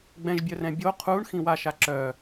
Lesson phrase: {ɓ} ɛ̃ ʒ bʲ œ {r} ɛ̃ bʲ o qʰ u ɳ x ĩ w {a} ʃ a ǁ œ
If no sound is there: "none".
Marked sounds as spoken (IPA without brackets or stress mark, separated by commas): ɡ͡b, r, a